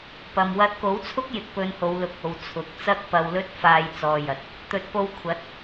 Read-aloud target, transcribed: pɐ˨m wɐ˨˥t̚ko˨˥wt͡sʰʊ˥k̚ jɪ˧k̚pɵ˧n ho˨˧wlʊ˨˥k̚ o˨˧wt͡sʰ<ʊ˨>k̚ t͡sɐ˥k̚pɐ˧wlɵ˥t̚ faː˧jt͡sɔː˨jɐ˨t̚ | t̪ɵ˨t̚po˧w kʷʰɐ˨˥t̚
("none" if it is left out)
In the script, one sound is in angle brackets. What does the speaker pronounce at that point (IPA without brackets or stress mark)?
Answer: ʊ˨